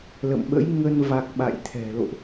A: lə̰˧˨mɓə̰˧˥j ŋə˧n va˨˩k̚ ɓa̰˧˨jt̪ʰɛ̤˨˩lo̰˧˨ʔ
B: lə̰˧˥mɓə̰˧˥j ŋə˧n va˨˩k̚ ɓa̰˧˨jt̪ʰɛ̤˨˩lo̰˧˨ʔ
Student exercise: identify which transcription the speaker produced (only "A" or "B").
A